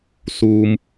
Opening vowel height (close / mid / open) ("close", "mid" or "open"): close